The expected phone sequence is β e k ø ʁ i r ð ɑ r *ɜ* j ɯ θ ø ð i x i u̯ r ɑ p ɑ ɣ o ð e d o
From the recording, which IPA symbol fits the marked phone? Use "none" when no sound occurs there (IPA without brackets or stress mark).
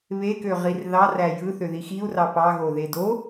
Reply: æ